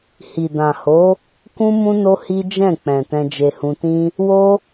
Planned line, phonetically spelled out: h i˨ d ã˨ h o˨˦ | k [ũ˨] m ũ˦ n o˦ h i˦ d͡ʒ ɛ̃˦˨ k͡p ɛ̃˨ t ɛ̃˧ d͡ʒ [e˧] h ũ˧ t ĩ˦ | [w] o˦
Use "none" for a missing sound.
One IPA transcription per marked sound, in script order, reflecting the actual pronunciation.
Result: ũ˦, e˧, w

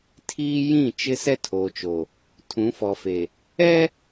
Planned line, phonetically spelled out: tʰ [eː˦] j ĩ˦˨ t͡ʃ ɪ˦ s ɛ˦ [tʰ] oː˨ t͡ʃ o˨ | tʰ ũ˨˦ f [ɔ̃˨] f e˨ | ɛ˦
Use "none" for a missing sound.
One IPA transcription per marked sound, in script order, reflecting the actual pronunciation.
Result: iː˦, tʰ, ɔ˨

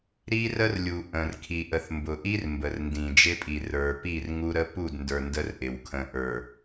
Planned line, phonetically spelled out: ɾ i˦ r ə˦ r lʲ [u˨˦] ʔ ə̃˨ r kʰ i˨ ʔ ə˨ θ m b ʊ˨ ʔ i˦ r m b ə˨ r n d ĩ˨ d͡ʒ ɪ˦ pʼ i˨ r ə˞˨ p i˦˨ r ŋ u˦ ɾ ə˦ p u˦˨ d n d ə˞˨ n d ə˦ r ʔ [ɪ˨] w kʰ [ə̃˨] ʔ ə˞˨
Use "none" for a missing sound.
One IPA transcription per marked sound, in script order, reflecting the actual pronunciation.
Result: u˨, ɪ˨, ə̃˨

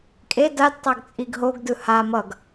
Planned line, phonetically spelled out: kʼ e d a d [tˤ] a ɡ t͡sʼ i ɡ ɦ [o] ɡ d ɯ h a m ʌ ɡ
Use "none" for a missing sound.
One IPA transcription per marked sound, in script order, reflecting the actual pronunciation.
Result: tˤ, o

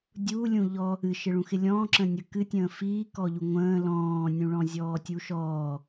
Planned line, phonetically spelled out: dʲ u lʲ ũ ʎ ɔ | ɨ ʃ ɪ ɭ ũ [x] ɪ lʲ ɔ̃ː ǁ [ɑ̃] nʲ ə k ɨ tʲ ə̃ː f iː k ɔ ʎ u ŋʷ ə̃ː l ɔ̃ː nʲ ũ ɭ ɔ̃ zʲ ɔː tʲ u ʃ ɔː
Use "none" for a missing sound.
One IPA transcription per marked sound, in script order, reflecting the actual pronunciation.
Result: x, ə̃

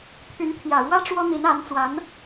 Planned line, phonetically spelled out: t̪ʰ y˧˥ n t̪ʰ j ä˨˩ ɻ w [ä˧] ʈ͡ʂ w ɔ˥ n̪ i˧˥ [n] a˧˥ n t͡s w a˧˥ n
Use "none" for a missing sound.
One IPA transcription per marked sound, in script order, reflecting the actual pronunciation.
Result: ä˥, n

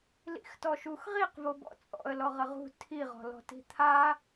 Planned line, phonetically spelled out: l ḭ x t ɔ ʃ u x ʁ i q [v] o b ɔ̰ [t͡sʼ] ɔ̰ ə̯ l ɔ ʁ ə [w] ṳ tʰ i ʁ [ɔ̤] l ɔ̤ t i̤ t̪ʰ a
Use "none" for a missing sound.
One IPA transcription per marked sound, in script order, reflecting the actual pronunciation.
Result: v, t͡sʼ, ʁ, ɔ̤

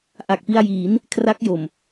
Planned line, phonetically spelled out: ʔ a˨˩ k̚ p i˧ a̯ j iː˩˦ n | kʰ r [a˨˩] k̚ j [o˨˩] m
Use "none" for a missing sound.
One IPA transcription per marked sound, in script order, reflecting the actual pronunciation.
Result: a˦˥, o˨˩

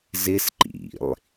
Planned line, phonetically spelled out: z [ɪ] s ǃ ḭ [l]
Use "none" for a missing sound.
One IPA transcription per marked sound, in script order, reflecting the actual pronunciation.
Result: ɪ, lˠ

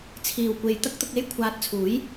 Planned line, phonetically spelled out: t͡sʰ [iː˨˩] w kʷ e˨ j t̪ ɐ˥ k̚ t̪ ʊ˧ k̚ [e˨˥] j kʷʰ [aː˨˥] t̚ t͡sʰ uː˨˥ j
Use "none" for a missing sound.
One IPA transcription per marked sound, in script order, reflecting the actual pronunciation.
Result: iː˨˩, e˥, aː˧

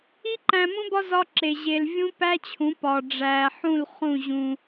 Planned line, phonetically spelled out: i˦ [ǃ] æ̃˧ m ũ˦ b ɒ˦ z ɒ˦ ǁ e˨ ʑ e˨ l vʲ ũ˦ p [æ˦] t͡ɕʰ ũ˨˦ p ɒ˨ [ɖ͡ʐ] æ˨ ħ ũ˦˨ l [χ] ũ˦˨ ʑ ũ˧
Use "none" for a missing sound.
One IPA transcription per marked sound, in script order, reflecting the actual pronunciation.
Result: ǃ, æ˦, ɖ͡ʐ, χ

